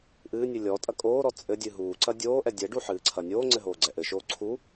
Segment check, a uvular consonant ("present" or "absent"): absent